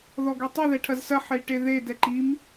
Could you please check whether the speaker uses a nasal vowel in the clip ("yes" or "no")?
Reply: no